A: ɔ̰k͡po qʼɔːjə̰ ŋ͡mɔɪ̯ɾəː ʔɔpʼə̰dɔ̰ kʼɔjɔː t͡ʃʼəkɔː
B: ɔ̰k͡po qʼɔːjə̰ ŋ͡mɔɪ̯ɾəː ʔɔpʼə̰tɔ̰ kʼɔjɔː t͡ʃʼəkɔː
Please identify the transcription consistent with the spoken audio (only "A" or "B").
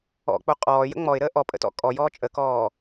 B